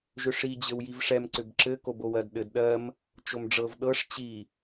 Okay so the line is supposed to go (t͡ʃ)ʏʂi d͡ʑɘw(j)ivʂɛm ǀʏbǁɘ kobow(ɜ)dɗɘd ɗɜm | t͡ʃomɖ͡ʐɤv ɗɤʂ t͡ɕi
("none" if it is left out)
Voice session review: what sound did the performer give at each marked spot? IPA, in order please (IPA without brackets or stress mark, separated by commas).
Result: ʒ, j, ɜ